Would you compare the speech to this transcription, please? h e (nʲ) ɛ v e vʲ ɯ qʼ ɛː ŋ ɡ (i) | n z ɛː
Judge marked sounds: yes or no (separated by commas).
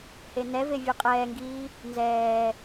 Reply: no, no